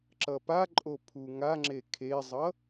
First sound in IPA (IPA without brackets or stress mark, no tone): ǁ